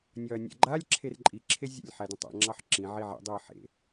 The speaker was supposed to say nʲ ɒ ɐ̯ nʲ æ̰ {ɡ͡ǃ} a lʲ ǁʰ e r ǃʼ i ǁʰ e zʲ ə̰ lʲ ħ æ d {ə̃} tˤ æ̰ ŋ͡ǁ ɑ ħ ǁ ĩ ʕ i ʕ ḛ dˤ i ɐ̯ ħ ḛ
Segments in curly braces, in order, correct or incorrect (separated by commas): correct, correct